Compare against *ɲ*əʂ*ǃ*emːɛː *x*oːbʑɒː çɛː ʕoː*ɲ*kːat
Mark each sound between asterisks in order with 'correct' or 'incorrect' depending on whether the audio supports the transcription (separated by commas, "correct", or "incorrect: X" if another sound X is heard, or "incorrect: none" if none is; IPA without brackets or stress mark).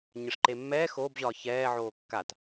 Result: correct, correct, correct, incorrect: none